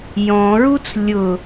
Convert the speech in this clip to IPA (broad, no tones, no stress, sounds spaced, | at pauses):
j ɔ̃ ɹ u t͡s lʲ ʊ